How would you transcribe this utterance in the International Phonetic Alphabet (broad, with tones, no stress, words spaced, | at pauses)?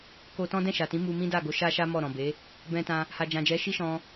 ko˧tɔ̃˦ dɛ̃˦˨ʃa˨tĩ˨˦ mu˧mĩ˦ da˦˨ɡo˨˦ ʃa˦ʃa˦ mɔ˦˨ ɾɔ̃˨be˨˦ | bɛ̃˧tã˧ | ha˨d͡ʒã˨d͡ʒɛ˨˦ ʃi˦ʃɔ̃˧